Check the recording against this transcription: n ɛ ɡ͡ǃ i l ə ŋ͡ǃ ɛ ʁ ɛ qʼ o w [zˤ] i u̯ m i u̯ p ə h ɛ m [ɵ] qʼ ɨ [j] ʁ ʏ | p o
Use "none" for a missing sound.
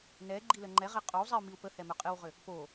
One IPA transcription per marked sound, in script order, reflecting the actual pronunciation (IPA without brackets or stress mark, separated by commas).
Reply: zˤ, ɵ, w